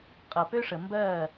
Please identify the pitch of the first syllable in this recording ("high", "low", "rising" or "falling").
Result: low